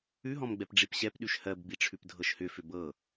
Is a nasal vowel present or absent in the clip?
present